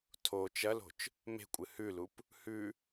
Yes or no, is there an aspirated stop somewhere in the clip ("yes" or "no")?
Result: yes